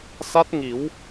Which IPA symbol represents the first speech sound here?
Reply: s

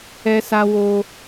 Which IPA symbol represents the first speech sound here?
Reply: ɛ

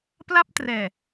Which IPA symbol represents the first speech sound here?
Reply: p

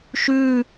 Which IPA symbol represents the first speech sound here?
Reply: ʃ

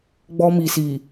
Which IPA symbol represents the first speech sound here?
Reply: ɡ͡b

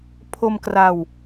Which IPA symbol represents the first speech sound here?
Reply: pʰ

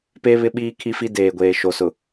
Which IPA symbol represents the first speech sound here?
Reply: p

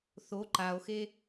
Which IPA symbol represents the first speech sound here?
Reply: θ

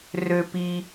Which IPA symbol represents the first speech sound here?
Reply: r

